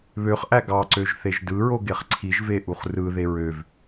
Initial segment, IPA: β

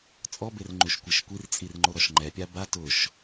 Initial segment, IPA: t͡sʼ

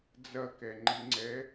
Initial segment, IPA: d͡z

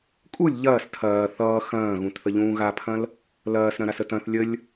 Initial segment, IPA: kʼ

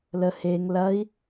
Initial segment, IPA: l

